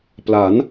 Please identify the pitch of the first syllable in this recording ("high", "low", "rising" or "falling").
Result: rising